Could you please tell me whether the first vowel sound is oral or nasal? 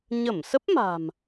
oral